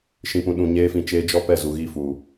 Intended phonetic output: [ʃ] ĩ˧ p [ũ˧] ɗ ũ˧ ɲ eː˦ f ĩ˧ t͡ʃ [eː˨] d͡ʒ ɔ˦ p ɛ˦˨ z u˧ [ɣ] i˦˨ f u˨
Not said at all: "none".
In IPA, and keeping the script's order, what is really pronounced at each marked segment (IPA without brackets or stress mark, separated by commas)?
ʃ, ũ˧, eː˧, ɣ